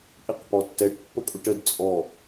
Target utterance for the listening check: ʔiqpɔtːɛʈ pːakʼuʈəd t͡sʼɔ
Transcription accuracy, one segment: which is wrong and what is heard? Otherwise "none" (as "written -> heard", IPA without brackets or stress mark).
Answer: a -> ə